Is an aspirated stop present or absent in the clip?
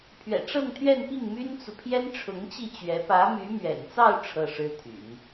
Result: present